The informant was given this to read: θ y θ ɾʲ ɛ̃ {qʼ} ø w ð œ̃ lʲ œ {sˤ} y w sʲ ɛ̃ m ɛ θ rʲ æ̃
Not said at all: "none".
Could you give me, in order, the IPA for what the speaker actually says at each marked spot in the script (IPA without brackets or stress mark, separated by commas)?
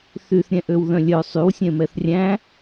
ʔ, sˤ